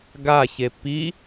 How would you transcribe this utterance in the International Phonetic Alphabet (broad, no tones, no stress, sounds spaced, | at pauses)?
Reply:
ɡ a ç e p i